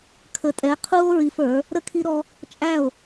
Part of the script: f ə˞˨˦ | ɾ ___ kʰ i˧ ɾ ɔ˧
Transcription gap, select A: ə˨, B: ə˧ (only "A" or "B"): B